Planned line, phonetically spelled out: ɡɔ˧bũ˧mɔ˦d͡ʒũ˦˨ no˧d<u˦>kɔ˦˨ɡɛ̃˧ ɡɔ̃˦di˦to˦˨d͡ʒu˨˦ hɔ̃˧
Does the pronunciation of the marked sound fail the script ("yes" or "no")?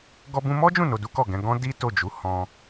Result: no